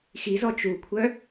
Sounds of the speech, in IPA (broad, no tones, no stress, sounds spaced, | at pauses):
x i z ɔ t͡ʃ u kʷʰ œ